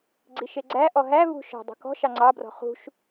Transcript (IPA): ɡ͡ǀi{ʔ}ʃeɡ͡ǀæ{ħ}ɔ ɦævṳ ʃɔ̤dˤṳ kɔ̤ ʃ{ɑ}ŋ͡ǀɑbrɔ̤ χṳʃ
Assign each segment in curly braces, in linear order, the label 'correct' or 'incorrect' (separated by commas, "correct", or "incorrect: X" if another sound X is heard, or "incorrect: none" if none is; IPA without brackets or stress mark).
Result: incorrect: none, incorrect: ʔ, correct